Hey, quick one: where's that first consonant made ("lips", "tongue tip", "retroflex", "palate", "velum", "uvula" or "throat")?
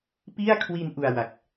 lips